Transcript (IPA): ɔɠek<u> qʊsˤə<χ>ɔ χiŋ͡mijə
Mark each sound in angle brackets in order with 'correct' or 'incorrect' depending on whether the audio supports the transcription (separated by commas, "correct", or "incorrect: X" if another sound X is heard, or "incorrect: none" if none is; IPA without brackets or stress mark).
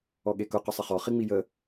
incorrect: ʊ, correct